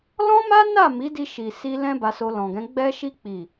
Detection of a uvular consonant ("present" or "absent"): absent